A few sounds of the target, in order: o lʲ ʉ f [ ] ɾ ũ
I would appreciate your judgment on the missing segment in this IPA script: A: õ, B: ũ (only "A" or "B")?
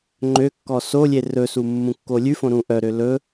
A